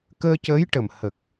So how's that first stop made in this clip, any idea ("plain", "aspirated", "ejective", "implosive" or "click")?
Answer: plain